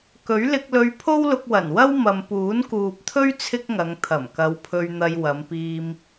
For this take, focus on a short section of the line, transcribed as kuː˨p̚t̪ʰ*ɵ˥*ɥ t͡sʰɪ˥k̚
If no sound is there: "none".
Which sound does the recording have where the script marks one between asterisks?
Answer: ɵ˥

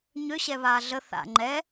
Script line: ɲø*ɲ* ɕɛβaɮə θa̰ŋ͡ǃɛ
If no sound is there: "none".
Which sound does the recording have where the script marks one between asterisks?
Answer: none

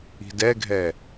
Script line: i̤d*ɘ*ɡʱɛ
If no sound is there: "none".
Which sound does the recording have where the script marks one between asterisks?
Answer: ɛ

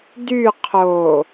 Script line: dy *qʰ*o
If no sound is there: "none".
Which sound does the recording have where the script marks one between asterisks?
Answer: qʰ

